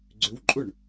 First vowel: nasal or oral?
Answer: oral